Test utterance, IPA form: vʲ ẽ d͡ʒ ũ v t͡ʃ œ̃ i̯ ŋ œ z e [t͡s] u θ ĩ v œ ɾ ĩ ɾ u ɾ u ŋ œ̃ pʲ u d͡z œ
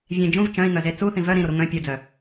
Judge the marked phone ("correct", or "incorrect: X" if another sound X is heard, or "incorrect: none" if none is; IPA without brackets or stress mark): correct